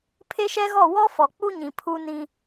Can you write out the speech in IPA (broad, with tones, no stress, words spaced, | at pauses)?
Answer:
pʰe˦ʃɛ˦ɣɔ˦˨ wɔ˦fɔ˨k͡pu˦ɲĩ˨ pʰu˦nĩ˦